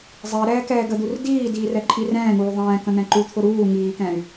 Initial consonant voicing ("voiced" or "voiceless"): voiced